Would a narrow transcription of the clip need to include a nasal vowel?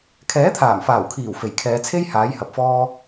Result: no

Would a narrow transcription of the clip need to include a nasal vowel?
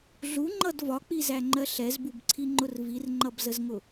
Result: no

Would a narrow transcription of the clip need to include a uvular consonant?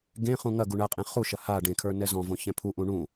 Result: yes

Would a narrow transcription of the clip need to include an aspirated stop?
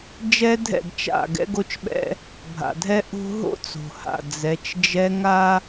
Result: no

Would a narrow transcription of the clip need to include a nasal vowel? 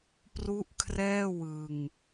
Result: no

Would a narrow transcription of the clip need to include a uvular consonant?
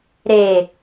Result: no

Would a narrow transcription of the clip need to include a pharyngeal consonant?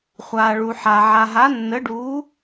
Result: yes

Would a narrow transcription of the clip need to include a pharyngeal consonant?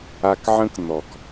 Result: yes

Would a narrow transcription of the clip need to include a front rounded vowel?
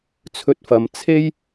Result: no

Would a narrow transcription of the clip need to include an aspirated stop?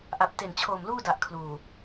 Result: yes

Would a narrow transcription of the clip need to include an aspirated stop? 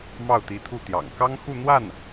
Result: yes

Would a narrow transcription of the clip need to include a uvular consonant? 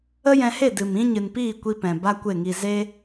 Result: no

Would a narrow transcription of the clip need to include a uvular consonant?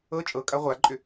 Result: yes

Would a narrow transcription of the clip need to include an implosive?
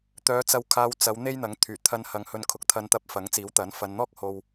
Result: no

